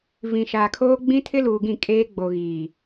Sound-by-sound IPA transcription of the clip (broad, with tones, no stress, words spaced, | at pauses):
vĩ˨ʃaː˨kʰoː˦ ɡ͡bĩ˦tʰɪ˦luː˨ɡĩ˦˨ kʼeː˦ ɡ͡bo˨ɣiː˨